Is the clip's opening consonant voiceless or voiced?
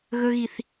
voiced